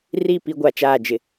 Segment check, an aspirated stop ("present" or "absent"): absent